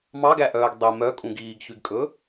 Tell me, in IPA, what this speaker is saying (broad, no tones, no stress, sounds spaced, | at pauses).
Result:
m ɑ ɡ æ ʔ œː ɡ dˤ i m œ kʼ ũ ɡ iː ɡ ç y ɡ kʼ ɵ